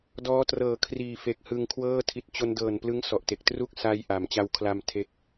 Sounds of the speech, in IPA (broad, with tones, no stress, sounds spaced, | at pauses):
d ɔː˦˥ t r ɤː˨˩ kʰ r iː˨˩ f e˨˩ k̚ h ɯ˧ ŋ kʰ w ɤː˥˩ tʰ i˨˩ t̚ t͡ɕ o˧ n d ɤː˨˩ n p l ɯ˦˥ ŋ s ɔ˨˩ ʔ t e˨˩ k̚ t r u˥˩ k̚ s a˧ j ʔ a˩˦ m t͡ɕ a˧ w kʰ l a˧ m tʰ e˦˥ k̚